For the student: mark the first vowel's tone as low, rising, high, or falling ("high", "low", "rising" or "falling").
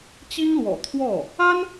high